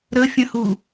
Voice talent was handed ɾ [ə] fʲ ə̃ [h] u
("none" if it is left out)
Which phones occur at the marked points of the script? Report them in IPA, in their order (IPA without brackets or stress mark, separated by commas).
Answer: ə, h